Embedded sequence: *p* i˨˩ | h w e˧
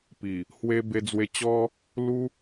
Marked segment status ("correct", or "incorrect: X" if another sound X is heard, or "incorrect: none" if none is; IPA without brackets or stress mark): correct